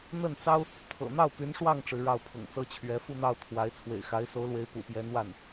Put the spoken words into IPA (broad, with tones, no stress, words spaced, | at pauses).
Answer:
n̪ə˥˩nt͡sɑ˥ʊ̯ | t̪ʰɤ̰˨˩n̪ɑ˥˩ʊ̯ py˧˥nʂwɑ˥˩ŋ ʈ͡ʂɻ̩˧˥ɻɑ˥˩ʊ̯pʰʊ̰˨˩ŋt͡sɤ˥ t͡ɕʰɥɛ˧˥fu˥˧n̪ɑ˥˩ʊ̯ t̪ʰwa˧˥ɪ̯ t͡sʰwḛ˨˩ɪ̯xa˧˥ɪ̯so˧˥ʊ̯lwe˧˥ɪ̯ pṵ˨˩pjɛ˧˥nwa˥˩n